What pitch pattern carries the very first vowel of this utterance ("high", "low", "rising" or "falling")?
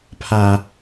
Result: low